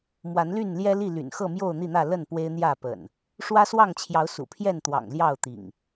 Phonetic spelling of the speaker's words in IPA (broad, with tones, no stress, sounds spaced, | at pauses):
m w a˨˦ n l y˥˨ n l j ɛ˦ l i˥˨ l y̰˨˩ n x ɤ˥˨ m j o˥˨ ʊ̯ n̪ i˥˨ n̪ ä˥˨ l ə˥˨ n p w e˦ ɪ̯ n̪ j ä˥˨ p ə̰˨˩ n | ʂ w ä˦ s w ɑ˥˨ ŋ t͡ɕʰ j ɑ˨˦ ʊ̯ s ṵ˨˩ pʰ j ɛ˥˨ n t̪ w ɑ̰˨˩ ŋ l j ɑ˥˨ ʊ̯ t̪ ḭ˨˩ ŋ